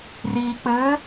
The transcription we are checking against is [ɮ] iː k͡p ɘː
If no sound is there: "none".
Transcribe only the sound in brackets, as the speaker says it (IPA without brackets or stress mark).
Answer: r